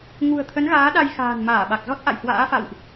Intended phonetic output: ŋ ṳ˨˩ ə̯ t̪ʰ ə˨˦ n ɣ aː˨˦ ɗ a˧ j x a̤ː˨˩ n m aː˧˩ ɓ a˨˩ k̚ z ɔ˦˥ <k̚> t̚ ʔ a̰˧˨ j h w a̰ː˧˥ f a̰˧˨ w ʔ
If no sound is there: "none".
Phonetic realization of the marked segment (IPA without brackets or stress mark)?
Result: none